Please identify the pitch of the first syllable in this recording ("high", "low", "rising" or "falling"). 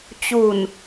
low